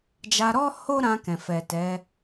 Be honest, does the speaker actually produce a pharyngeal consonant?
no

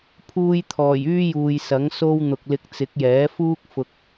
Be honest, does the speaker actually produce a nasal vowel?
no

